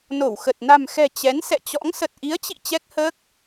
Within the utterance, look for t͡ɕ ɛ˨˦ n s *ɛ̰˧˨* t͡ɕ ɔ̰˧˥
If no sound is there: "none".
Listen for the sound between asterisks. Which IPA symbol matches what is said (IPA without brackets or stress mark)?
ɛ̰˧˨